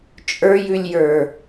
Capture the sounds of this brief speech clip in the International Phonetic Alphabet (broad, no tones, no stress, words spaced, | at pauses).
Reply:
t͡ʃʼə˞jʉlʲjə˞